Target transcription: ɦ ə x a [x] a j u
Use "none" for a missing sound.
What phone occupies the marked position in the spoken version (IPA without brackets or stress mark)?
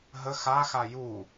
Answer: x